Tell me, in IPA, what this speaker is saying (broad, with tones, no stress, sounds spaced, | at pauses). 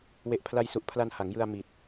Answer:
w e˨˩ ʔ pʰ l a˧ j s u˨˩ ʔ pʰ l a˧ n h a˩˦ ŋ j ɯ˧ a̯ m i˨˩ t̚